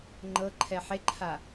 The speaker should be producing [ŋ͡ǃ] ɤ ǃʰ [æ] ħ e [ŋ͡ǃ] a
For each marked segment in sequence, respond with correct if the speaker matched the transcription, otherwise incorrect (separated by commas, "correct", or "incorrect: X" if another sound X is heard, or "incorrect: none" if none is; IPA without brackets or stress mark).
correct, incorrect: ɛ, incorrect: ǃʰ